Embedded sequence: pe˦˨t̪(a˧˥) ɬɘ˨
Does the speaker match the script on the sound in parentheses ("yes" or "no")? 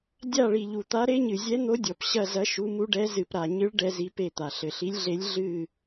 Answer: no